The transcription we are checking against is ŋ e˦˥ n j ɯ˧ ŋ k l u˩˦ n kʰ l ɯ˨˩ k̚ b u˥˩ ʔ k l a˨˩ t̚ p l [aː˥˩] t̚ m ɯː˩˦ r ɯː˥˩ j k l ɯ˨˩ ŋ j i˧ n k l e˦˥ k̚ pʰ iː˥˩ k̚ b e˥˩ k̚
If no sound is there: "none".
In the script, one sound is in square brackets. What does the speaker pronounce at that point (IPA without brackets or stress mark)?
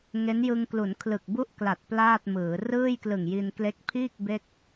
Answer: aː˥˩